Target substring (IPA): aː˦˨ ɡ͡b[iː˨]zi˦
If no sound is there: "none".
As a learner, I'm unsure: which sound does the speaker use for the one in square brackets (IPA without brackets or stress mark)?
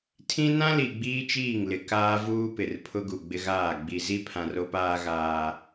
i˨